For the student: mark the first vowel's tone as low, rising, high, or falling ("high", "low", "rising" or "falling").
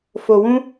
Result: low